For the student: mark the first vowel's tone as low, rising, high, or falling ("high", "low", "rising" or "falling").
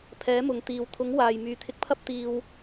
rising